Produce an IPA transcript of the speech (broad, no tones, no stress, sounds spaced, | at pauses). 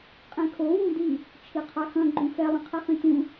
qʼ ẽ kʰ o w ũ d i | t͡ʃʰ i qʰ a x ɐ̃ ɡ͡ǃ ũ x ɛ lˠ ɐ̃ qʰ e χ ĩ t ũ